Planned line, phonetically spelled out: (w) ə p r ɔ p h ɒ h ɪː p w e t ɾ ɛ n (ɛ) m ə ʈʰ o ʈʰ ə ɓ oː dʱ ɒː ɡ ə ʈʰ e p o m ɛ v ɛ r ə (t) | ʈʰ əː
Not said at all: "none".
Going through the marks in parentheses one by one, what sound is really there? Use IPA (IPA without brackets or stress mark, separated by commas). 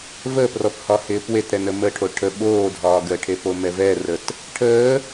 v, ə, t